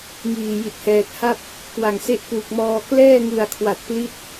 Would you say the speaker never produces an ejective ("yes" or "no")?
yes